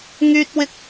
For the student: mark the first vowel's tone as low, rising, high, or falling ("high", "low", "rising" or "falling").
high